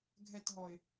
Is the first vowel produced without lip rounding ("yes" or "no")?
yes